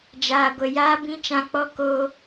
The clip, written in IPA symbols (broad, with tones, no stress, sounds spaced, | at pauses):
d͡ʒ aː˨ ɡʷ ə˨ j aː˦ b ĩ˦ t͡ʃ ã˧ k͡p ɔ˦ k o˧